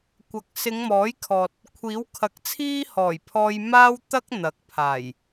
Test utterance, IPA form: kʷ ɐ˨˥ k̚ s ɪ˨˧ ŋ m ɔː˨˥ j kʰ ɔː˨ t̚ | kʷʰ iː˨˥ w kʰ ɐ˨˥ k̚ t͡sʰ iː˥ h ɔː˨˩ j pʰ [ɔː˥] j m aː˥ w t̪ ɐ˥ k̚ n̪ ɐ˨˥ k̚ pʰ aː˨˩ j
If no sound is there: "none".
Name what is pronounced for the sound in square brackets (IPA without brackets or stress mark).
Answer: ɔː˧